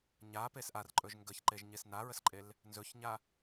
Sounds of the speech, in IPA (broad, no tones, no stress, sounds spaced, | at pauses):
ɲ a p e s ʔ a r ǃʼ ɵ ʒ ŋ ɡ ə ç ǃ e ʒ ɲ e s n a ɹ ə s ǃʼ e l | n z ɵ ç ɲ a